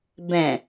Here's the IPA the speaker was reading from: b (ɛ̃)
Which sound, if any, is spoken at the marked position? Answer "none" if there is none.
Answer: ɛ̃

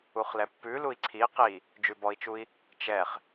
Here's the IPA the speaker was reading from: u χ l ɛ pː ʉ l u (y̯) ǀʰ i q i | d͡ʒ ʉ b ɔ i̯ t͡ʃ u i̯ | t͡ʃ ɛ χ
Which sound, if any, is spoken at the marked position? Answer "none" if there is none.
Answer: i̯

